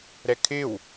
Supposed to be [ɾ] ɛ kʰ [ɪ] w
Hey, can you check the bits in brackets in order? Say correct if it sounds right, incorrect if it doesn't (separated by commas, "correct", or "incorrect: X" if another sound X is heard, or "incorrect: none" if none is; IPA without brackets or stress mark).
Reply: correct, correct